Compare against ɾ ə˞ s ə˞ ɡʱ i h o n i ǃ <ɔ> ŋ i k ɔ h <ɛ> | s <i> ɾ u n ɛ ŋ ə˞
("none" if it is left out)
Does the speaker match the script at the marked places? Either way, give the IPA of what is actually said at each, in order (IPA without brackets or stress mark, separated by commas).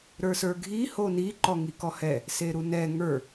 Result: ɔ, ɛ, e